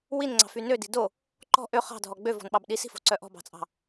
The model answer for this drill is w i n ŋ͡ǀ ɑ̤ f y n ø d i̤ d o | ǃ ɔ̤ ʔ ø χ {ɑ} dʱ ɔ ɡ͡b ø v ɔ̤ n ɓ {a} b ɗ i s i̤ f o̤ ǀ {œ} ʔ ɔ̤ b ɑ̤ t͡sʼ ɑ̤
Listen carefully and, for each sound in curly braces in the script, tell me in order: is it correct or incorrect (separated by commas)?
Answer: incorrect, incorrect, correct